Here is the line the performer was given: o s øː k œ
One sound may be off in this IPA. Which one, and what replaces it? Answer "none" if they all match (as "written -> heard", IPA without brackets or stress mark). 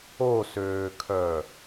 k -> kʰ